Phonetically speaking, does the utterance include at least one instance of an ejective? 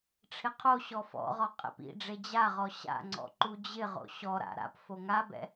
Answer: yes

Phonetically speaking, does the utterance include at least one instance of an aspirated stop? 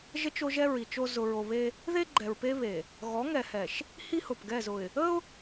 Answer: no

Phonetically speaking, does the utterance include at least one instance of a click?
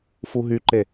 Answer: yes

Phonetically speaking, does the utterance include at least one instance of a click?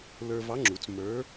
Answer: yes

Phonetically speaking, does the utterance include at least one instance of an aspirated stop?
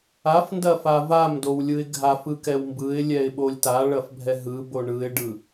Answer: no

